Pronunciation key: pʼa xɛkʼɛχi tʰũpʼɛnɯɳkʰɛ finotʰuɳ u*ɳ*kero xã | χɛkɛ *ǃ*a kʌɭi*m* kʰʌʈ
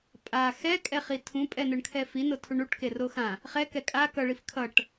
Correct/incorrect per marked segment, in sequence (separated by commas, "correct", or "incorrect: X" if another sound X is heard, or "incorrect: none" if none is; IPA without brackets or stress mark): incorrect: ʈ, incorrect: kʼ, incorrect: f